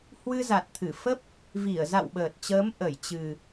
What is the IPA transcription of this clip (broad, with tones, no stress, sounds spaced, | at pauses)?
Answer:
h w ɨ˧ z a˨˩ t̚ t̪ʰ ɨ˧˩ f ə˦˥ p̚ | v i˧˩ ə̯ z a̰˧˨ w ɓ əː˨˩ t̚ t͡ɕ əː˨˦ m ʔ ə˧˩ j t͡ɕ ɨ˨˩